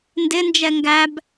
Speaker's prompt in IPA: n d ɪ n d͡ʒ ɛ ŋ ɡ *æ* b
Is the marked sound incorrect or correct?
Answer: correct